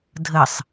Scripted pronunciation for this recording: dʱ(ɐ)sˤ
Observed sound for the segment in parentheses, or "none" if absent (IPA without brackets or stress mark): ə